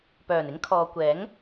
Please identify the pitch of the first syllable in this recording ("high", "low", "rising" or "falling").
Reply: low